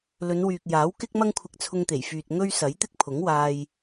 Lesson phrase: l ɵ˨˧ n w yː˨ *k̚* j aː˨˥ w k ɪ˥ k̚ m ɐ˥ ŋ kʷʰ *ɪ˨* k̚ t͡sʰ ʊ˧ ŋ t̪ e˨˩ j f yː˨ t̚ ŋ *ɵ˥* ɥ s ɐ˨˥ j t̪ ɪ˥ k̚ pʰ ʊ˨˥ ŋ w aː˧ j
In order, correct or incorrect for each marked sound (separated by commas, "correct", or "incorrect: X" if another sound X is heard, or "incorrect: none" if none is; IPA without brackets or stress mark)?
correct, incorrect: ɪ˧, correct